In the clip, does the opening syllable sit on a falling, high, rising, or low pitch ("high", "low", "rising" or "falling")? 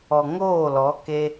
low